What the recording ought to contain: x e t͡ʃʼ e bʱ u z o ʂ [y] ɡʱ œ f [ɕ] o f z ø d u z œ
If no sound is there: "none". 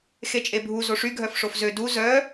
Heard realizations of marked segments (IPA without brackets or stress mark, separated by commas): y, ʂ